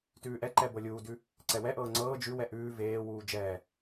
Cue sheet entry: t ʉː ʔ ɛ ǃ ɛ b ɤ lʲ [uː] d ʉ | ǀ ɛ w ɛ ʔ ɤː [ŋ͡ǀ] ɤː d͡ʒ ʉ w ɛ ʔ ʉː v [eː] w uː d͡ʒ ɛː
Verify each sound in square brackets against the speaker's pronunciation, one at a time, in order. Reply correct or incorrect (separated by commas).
correct, correct, correct